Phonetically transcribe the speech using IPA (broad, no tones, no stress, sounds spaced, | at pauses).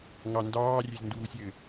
ŋ ɑ n d ɑː rʲ e z n d uː sʲ ɘ